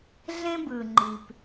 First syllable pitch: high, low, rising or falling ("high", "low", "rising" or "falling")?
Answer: high